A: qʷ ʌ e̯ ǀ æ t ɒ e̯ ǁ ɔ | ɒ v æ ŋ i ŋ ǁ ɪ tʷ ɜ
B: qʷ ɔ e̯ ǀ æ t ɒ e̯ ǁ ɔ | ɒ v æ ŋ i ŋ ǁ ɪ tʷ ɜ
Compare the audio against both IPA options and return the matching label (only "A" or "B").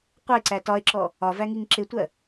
A